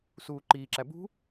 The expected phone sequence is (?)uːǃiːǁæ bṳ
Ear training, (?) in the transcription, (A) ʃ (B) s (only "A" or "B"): B